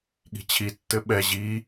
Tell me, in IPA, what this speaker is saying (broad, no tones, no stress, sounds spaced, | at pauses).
ɠ i̤ t͡ɕʰ i tː ɘ ɓ ɛ ʑ i